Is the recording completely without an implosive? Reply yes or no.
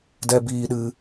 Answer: no